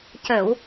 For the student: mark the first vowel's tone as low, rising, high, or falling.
low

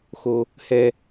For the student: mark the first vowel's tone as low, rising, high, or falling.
high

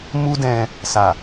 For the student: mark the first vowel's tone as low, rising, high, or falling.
high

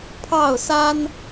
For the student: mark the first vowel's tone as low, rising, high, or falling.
falling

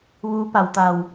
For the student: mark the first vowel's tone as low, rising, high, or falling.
rising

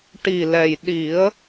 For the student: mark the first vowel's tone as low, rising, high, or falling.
low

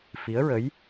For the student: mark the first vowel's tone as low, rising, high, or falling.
rising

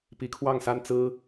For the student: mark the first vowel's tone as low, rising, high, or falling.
low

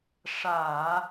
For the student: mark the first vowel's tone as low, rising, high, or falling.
low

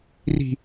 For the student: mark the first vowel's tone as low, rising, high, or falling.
high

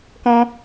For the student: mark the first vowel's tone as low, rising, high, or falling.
high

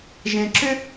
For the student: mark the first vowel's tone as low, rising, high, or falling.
low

